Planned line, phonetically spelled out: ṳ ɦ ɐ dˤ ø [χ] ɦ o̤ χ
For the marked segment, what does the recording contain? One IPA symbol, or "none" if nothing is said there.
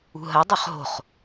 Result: χ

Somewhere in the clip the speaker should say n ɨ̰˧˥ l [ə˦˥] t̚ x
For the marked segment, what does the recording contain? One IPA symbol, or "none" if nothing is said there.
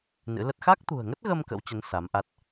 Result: ə˦˥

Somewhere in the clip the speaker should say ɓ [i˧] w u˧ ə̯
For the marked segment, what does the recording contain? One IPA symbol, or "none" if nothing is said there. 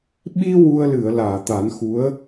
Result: i˧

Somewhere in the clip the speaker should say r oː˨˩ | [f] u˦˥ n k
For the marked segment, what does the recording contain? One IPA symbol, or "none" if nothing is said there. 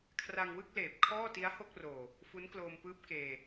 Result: f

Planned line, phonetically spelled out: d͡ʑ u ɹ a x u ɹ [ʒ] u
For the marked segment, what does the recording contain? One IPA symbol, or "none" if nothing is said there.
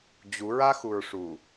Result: ʂ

